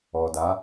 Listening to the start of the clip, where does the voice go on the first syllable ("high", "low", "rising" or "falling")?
low